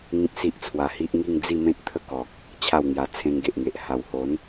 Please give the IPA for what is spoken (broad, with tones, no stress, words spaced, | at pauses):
ŋĩ˦p̚si˦ʔt͡sʰwa˧hi˦ʔ ŋi˥˧ŋd͡zi˥˧mẽ˦t̚t̪ʰə˦ kɔ˨k̚ | t͡ɕʰa˥˧wŋja˧ t͡sʰẽ˧ŋɡe˨ʔŋe˨ʔ ha˨˩who˨˦n